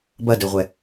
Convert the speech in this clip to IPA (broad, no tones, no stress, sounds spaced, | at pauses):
b ɐ d ɘ ʁʷ ɛ